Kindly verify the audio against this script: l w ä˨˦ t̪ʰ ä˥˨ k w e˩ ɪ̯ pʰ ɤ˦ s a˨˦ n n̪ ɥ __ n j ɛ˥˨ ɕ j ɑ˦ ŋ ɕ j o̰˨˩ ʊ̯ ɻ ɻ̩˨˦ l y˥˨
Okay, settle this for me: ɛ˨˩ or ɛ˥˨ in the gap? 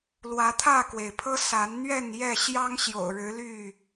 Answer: ɛ˥˨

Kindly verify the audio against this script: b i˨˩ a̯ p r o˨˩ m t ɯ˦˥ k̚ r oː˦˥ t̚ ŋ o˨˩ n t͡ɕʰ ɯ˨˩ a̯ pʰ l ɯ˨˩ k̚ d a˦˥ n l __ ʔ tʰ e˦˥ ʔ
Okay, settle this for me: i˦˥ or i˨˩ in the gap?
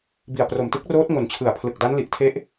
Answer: i˨˩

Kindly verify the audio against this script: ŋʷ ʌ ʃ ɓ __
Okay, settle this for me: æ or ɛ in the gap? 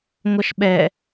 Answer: ɛ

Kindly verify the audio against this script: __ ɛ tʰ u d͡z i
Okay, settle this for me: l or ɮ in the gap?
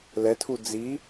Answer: l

